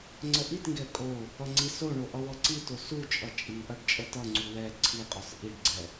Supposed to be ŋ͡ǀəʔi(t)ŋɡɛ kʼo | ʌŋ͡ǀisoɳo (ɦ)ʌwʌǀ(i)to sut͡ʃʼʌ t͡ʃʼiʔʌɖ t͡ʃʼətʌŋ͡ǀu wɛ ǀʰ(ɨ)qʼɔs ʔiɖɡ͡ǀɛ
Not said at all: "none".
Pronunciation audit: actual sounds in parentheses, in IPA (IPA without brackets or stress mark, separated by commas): t, ʔ, i, i